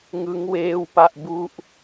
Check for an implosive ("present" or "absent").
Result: absent